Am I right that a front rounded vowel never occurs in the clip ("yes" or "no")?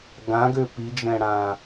no